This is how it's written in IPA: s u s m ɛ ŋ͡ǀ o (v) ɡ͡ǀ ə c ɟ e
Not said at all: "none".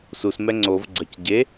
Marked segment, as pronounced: v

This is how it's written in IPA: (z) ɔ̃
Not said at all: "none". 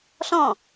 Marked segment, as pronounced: ɬ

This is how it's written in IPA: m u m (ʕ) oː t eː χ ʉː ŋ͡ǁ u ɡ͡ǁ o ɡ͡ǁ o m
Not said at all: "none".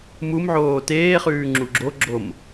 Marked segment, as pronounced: ʕ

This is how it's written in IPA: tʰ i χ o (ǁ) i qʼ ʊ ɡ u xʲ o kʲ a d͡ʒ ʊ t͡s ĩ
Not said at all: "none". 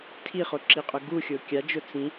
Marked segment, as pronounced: ǁ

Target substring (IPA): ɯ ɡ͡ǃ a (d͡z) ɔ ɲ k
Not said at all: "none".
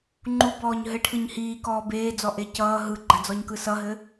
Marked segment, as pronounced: d͡z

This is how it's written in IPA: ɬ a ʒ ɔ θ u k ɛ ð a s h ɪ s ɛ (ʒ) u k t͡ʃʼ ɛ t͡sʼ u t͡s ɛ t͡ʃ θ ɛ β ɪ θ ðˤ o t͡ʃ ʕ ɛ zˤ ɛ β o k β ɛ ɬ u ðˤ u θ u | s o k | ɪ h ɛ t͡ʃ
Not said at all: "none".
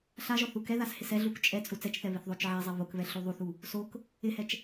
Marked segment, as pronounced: ɮ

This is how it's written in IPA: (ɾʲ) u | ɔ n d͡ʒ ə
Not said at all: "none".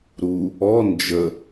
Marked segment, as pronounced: ɾ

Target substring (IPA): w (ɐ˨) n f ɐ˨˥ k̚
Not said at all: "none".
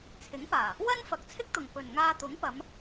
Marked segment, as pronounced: ɐ˥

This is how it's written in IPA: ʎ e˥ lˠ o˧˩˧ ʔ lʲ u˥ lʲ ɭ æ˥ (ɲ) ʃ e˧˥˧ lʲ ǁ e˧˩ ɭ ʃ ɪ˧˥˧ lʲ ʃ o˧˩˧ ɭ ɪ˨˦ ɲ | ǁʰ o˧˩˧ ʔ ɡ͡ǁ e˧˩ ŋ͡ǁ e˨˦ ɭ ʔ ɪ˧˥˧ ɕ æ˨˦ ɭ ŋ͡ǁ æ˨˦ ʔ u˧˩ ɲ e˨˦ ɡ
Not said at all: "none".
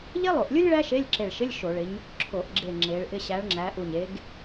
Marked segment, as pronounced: none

